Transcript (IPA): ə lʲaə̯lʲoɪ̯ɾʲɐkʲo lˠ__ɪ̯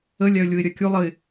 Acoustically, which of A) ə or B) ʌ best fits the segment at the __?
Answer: A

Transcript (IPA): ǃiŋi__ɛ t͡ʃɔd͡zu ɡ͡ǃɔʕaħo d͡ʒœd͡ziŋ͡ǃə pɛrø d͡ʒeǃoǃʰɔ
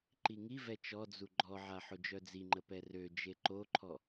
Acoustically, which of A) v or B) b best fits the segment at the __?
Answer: A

